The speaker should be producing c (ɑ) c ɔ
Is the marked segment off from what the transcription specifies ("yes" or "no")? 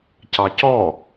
no